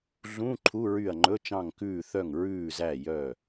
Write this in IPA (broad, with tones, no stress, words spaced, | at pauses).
ɮũ˧˥˧ ǃʰu˧˥˧ ɹy˦˨ɐ̯ ŋ͡ǃɵ˧˥˧t͡ʃɑ̃˦˨ŋkʉː˦˨ θœ˦˨ŋɹʉː˦˨zæ˦˨ jœ˦˨